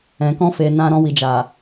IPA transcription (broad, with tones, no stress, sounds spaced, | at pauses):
ɛ̃˨ k ɔ̃˧ f e˨ n ã˨ ɾ ɔ̃˧ w i˨ d͡ʒ a˨